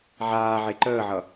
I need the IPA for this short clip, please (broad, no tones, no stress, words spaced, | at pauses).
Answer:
ʕaːʕe ǃəːʕʌ